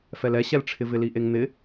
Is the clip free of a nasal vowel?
yes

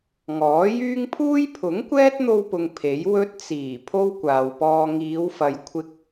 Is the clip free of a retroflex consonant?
yes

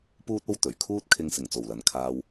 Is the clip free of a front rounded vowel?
yes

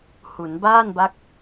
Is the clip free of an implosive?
yes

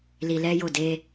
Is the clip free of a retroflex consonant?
yes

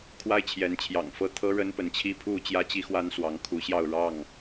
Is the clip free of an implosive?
yes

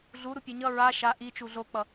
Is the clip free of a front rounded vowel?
yes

